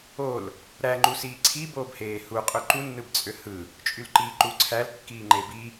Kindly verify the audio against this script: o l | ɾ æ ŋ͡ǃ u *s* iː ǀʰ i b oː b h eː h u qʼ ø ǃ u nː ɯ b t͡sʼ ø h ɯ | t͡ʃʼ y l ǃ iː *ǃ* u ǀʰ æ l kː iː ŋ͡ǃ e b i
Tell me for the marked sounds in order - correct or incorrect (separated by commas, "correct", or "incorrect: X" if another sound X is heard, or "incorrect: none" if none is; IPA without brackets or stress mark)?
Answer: correct, correct